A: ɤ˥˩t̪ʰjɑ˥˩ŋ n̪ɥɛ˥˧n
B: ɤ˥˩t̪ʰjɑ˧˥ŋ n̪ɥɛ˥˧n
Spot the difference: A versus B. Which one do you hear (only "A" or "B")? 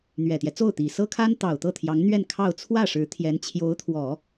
B